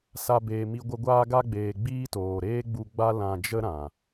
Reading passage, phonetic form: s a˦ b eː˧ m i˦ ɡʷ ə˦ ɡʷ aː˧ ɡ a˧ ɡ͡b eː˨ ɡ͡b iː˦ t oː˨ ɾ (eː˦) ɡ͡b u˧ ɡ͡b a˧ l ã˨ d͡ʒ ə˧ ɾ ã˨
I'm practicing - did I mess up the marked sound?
no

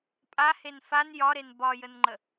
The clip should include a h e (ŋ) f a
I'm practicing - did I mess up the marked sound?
yes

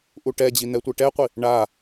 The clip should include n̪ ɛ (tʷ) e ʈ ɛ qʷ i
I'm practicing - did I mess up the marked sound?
no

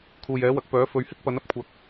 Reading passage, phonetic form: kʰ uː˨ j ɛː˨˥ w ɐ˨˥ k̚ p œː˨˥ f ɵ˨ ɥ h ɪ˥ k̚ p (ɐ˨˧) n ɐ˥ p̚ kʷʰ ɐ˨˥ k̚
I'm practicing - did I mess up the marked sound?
yes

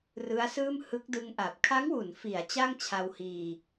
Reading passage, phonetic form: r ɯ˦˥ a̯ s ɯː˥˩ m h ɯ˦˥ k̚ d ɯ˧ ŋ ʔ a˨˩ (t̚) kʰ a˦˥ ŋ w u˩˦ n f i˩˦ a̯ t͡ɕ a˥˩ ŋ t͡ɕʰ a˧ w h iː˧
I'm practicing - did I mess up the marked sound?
yes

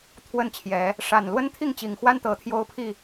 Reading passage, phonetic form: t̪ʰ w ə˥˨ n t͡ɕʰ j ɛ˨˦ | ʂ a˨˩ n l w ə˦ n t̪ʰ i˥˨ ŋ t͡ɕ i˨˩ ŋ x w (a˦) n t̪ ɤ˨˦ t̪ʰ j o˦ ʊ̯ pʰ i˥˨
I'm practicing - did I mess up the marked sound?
no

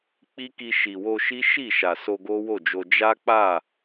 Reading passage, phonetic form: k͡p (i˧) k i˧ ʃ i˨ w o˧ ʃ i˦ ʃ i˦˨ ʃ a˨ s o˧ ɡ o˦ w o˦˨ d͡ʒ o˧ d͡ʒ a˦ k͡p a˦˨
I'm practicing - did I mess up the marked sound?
yes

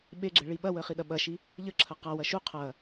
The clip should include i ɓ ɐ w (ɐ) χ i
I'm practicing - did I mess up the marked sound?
yes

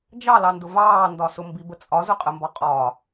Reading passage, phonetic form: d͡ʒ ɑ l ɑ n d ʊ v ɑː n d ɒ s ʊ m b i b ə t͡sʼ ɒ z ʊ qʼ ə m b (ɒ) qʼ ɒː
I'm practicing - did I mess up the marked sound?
no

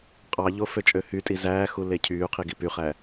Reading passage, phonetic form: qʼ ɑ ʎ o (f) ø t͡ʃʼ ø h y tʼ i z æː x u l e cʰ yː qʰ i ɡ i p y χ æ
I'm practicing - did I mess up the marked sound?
no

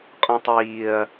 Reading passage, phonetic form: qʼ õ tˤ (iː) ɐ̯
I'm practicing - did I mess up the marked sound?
no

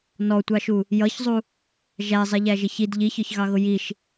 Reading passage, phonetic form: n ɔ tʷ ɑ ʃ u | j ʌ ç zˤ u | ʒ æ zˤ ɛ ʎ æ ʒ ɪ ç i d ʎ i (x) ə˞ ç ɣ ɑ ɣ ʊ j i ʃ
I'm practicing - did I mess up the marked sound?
yes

